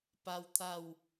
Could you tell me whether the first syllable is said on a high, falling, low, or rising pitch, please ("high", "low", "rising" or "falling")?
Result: high